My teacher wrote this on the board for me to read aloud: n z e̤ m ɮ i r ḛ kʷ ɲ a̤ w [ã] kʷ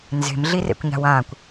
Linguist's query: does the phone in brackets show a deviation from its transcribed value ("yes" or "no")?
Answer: no